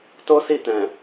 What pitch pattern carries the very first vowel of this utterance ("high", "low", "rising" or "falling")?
high